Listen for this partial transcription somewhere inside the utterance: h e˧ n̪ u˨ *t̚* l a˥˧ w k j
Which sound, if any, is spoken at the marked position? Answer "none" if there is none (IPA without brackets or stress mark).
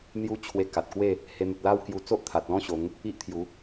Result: t̚